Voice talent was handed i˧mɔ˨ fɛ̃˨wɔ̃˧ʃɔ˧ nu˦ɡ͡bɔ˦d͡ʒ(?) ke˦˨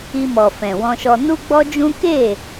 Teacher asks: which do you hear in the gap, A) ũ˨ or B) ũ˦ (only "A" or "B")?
B